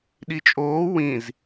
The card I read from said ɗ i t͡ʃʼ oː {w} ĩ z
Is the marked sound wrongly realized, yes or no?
no